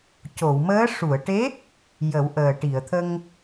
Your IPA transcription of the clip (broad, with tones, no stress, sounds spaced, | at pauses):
c o˨˩˨ w m əː˧˥ ʂ u˨˩˨ ə̯ ʈ e˧˥ | j ə˨˩˦ w ʔ əː˨˩ ʈ i˨˩˨ ə̯ t̪ʰ ə˧ ŋ